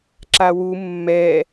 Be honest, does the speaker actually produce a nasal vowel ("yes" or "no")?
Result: no